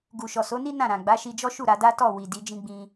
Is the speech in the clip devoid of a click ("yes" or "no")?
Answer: yes